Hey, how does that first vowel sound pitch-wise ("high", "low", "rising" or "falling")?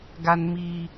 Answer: high